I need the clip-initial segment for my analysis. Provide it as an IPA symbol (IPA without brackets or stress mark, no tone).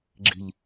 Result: ɡ͡ǁ